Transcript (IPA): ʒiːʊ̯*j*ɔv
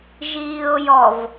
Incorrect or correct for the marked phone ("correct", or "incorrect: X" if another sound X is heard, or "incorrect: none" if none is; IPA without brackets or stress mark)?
correct